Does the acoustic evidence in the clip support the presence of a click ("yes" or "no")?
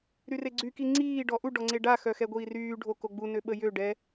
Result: yes